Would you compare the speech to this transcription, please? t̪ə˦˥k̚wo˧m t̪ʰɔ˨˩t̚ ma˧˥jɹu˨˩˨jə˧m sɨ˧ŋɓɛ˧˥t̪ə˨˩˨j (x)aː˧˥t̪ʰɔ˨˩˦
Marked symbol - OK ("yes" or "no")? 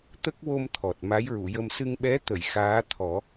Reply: yes